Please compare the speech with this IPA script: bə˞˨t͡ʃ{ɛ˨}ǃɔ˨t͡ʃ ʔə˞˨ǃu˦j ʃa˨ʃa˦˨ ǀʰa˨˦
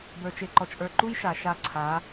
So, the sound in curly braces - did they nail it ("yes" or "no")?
no